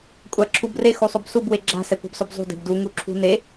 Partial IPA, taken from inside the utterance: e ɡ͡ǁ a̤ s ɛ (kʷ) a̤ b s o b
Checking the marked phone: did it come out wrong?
no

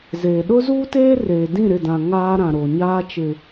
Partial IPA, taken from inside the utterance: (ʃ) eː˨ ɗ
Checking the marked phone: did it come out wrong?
yes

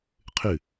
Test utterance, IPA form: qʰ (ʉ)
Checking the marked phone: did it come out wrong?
no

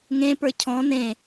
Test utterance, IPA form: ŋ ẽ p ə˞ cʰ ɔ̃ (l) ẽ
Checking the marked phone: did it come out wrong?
yes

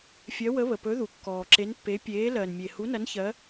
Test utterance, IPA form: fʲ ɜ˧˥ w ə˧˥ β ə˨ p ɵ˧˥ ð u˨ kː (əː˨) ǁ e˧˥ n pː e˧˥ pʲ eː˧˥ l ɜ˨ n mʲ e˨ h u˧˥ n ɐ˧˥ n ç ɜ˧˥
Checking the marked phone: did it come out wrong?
yes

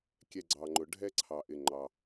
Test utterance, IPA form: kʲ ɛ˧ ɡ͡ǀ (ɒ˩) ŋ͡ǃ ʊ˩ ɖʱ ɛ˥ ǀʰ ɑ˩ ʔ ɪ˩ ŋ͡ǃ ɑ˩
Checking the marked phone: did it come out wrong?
yes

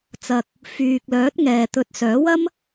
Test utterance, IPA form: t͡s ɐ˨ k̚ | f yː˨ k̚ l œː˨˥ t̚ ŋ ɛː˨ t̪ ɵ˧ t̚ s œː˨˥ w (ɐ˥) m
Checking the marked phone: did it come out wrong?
no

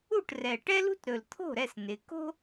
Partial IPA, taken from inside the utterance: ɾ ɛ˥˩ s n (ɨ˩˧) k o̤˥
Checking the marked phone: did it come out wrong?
yes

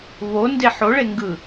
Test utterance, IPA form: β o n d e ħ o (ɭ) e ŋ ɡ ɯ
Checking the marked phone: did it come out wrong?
no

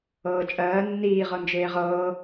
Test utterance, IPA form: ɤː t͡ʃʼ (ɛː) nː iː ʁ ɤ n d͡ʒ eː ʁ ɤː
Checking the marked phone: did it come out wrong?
yes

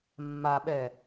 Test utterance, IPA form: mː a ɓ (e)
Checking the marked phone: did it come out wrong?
yes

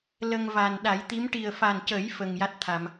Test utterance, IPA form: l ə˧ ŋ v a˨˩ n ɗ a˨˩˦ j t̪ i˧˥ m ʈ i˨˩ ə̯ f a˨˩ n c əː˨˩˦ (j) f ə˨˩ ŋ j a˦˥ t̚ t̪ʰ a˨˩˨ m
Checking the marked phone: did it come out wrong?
no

